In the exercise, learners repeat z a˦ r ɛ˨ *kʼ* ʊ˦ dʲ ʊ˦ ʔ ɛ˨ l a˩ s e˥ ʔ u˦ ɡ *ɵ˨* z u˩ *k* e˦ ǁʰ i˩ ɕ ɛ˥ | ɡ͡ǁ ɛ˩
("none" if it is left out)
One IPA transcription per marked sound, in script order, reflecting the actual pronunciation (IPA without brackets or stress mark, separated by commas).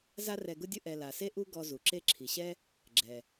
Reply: ɡ, ɔ˨, ǁ